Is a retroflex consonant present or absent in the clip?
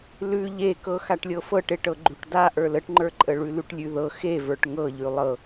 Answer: present